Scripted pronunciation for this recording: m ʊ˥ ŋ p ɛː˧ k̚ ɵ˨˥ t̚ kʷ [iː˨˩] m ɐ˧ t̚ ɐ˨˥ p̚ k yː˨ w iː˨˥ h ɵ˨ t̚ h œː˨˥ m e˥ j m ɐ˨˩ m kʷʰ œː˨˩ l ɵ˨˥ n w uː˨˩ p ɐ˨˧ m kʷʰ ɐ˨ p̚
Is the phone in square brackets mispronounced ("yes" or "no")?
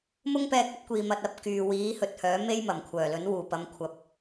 yes